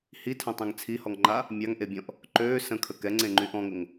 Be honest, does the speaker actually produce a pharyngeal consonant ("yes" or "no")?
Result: no